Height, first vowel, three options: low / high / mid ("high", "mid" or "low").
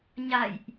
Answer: low